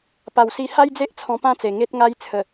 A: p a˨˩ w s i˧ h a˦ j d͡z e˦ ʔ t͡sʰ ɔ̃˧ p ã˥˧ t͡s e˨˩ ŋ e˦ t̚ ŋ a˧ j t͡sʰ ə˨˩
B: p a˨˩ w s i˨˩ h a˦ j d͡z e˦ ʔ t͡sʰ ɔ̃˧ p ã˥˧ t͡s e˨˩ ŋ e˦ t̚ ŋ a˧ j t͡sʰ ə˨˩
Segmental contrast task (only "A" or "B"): A